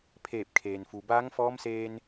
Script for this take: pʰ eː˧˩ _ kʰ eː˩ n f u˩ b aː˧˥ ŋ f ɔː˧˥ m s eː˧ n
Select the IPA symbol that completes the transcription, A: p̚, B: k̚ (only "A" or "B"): A